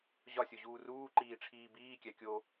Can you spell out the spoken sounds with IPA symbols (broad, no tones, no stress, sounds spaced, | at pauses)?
ʑ ɒ sʲ o ʑ uː r uː ǃ iː ʈ͡ʂʰ iː b iː kʲ æ kʲ o